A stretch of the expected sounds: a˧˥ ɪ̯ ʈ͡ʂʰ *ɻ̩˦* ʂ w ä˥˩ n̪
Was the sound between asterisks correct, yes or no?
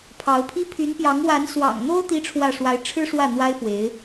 no